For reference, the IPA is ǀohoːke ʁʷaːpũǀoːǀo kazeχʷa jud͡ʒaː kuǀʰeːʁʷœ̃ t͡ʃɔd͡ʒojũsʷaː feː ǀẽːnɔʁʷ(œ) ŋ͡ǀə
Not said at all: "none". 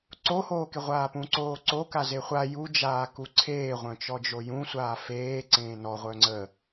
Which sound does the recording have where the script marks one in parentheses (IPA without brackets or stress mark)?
œ